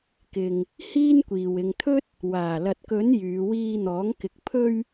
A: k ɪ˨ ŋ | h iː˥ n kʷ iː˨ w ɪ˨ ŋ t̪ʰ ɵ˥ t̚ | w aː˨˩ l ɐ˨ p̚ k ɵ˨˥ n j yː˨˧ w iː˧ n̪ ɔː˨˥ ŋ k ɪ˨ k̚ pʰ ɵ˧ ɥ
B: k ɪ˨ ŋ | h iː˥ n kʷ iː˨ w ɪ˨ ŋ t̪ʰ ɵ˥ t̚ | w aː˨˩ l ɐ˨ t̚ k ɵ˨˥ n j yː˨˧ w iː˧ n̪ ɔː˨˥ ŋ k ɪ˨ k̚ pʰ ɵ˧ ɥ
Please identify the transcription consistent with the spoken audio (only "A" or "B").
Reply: B